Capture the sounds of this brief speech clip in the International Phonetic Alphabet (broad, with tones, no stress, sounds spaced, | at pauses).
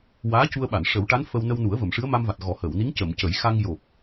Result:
w aː˧˥ c u˧ ə̯ ɓ a˨˩˨ n ʂ ə˨˩˦ w ʈ a˧˥ n f ə˧ w n ə˧ w n u˨˩˦ ə̯ v ə˨˩˨ m ʂ ɨ˧˥ ə̯ m a˧ m v a˨˩ t̚ ɣ ɔ˨˩˦ h əː˨˩˨ w n i˧˥ ŋ c ə˨˩˨ m c ə˨˩˦ j x a˧ ŋ j o˨˩ p̚